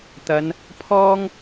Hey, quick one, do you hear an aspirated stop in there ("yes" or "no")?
yes